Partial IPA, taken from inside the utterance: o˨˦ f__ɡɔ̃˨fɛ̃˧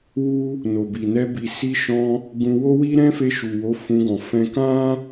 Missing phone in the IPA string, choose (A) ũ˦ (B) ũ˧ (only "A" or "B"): B